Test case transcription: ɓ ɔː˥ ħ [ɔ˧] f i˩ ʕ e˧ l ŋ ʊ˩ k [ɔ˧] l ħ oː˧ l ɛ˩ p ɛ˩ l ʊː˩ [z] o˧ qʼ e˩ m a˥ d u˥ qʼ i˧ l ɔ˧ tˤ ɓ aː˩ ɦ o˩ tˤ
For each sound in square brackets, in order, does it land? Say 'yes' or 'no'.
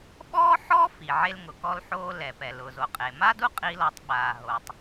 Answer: no, yes, yes

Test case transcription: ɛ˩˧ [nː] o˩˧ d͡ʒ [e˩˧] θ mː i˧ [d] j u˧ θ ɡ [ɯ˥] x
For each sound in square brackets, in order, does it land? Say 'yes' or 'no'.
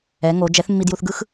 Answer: no, no, yes, yes

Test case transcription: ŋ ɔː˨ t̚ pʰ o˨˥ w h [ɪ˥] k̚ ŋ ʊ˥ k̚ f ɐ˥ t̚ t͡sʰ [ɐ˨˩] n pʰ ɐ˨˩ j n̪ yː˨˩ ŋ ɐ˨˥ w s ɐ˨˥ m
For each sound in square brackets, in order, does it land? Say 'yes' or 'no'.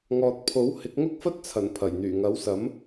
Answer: no, yes

